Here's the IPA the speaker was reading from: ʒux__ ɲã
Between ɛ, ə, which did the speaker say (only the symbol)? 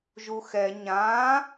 ɛ